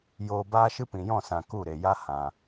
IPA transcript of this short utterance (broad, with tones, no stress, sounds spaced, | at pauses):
j oː˧ b aː˦ ʃ ɨ˦ p ĩ˨ j ɔ̃˦˨ s ã˨ k u˦˨ ɾ e˨ j a˦ h ã˧